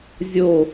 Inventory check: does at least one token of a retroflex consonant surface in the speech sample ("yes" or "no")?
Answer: no